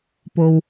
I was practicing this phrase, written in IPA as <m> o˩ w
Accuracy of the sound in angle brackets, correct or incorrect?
incorrect